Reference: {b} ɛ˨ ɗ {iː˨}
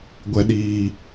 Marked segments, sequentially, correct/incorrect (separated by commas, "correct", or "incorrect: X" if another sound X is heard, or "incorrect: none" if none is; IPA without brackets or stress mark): incorrect: ɡʷ, correct